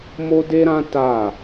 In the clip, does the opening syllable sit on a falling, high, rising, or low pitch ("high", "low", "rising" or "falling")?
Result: high